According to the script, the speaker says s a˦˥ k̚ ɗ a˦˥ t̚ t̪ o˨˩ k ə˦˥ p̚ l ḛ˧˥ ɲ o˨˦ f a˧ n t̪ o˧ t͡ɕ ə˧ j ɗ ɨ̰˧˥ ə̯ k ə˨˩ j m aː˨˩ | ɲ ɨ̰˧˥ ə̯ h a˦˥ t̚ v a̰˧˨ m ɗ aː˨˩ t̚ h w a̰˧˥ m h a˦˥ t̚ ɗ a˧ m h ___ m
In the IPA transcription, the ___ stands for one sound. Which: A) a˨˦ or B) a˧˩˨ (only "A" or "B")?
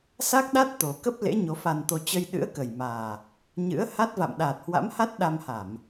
B